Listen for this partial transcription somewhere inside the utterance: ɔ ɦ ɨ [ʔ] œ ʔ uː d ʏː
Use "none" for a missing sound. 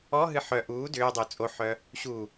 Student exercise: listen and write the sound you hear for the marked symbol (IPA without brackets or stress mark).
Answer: ħ